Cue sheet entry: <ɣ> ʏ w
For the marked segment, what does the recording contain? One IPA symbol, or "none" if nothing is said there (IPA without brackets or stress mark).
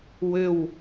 w